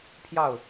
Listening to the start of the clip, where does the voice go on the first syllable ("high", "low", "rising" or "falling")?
falling